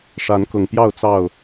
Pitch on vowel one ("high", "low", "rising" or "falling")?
rising